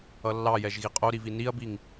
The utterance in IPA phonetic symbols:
ʌ lː ɑ j ɛ ʒ ɣ i qʼ o ɾ i v i n i ɐ̯ b i ŋ

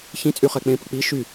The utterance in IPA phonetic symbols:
ç ĩ t͡sʼ y χ ɛ k͡p ẽ p ə k͡p i ʃ y

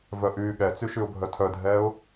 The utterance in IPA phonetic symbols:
v œ ʔ yː ɠ ɛ t͡s y ʃ y ʊ̯ bʱ œ tʰ œ dʱ ɛː ʊ̯

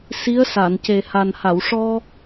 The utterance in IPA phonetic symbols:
s i˧˥ ə̯ s a˨˩˨ n c e˨˩ h a˨˩ n h a˨˩˨ w ʂ ɔ˧

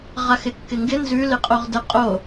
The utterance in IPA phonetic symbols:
ʁ a x ɪ kː ɪ ŋ ɡ ɪ n z ʉ l ɪ qʼ o ʁ d ə qʼ o

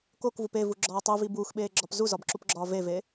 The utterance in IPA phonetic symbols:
k o k v u p e v u ɡ͡ǁ ɒː tˤ u v i b uː x ɓ eː ɡ͡ǁ ɒ p z u z ɒ b ǁ u p ɡ͡ǁ ɒː v e v e

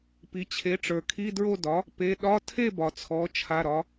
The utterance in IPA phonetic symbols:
p i˩˧ t͡ɕʰ e˩˥ ʈ͡ʂ ə˞˩ kʰ i˧˥˧ d ɹ o˥˨ d ɒ˩˥ | p e˩˧˩ ɗ ɒ˧˥˧ tʰ e˥˨ b ɒ˩ t͡sʰ ɔ˩˧ t͡ʃʰ a˩˧˩ ɾ ɒ˩˧

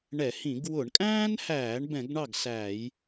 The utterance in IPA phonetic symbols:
ɳ ɛ˧˩˧ h ĩ˧˩˧ ɡ w ʊ˧˩˧ ɳ kʼ æ̃ː˥ n h æː˧˩˧ ɳ b ɛ̃˧˩˧ ɡ ɳ ɑ˥˩ ɡ s æː˧˩˧ j

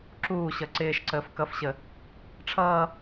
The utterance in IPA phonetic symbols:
ǁ uː ɕ ʌ ǀ ɪː ʃ ǀ əː f k ʌ f ɕ ə | ʈ͡ʂʰ ʌː

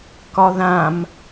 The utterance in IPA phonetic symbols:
k ɒ ð ã m

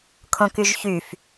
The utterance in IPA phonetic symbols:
kʰ õ k y ʒ ç y f

